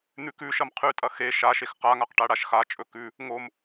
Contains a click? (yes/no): no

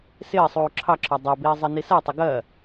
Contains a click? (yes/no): yes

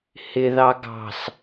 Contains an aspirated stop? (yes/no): no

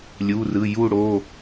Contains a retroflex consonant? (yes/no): yes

